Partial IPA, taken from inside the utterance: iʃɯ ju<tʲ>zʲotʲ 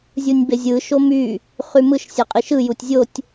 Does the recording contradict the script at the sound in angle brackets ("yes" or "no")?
no